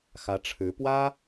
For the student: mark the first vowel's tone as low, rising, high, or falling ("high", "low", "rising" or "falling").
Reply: rising